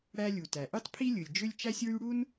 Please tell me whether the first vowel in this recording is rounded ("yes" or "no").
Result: no